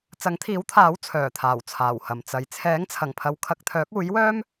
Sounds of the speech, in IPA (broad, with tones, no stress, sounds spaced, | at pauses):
t͡s ɐ˨˥ ŋ t̪ʰ iː˨˥ w t̪ʰ aː˨˥ w t͡sʰ œː˨˩ t̪ʰ aː˨˩ w t͡sʰ aː˨˩ w h ɐ˨˩ m t͡s ɐ˨ j t͡sʰ ɛː˨˥ ŋ t͡sʰ ɐ˨˩ ŋ pʰ ɐ˨˧ w kʰ ɐ˨ k̚ t̪ʰ œː˨˥ k̚ uː˨˥ j w œː˥ m